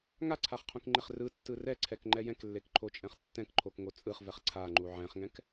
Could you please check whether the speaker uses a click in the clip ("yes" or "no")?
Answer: yes